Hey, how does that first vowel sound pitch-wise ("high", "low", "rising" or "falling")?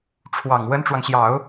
low